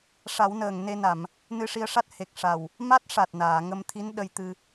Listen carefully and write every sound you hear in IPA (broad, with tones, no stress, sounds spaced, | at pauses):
ʂ a˨˩˦ w n əː˨˩ ŋ n e˧ n a˨˩˨ m | n ɨ˧ ʂ i˧ ə̯ ʂ a˦˥ t̚ h e˨˩ k̚ ʂ a˨˩ w | m a˦˥ t̚ ʂ a˨˩ t̚ n aː˨˩˨ ŋ ə˧ m t̪ʰ i˧˥ n ɗ ə˧ j t̪ ɨ˧